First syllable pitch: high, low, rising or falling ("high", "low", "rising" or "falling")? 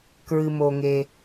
low